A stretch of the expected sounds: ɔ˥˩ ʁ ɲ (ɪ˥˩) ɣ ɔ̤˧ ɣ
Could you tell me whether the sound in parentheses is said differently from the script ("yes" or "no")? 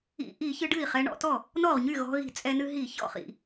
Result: yes